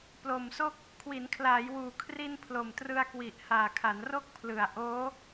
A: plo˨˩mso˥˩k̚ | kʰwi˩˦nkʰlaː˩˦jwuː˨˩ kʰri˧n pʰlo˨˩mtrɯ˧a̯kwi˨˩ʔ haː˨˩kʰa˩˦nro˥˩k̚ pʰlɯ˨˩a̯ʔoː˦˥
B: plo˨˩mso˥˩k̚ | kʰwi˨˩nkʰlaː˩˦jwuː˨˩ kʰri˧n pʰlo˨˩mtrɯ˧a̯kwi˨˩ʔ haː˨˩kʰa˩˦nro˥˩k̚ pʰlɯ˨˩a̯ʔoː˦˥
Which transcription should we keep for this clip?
A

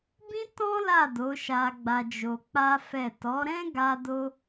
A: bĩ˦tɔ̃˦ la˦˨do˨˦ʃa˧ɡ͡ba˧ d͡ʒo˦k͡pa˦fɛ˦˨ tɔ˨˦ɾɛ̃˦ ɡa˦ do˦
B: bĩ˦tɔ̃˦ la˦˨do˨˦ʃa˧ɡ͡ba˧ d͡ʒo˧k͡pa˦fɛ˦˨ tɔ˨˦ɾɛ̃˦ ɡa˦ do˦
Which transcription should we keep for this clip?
B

